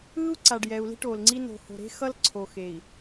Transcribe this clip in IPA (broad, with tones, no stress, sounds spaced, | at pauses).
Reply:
ɯː˦ u̯ ǀ a˨ ɖ j ɛ˨ u̯ l i̤˦ ʈ oː˨ l ŋ͡ǀ i˦ n o̤˨ h o̤˨ ɾ e̤˦ x ʌ˦ l ǀʰ o˨ x e˨ i̯